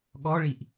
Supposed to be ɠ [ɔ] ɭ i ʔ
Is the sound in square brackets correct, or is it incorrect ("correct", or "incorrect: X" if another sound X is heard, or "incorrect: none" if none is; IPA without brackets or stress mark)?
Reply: correct